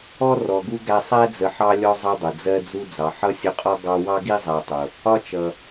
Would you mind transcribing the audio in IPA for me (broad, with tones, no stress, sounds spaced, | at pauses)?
ɔ˥ r ɔ˨ ɡ u˥ ɡ æ˦ sˤ æ˥ d͡z ə˨ ħ ɑ˦ lʲ ɔ˦ zˤ ʌ˥ dˤ ʊ˩ d͡z ɜ˥ d͡z u˥ d͡z ɑ˩ ħ ʌ˥ sʲ ʊ˦ qʼ ɒ˥ ɡ ɑ˦ w ɑ˥ ɡ i˥ zˤ æ˨ tˤ ʊ˩ | ɒ˦ t͡ʃ ʌ˩